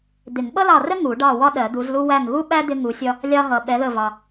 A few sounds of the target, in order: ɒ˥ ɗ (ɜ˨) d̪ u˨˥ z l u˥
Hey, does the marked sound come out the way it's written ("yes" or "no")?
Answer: no